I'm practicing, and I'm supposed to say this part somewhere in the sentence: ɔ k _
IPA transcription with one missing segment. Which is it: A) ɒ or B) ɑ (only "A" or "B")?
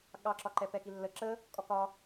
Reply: A